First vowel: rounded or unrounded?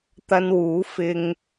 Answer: unrounded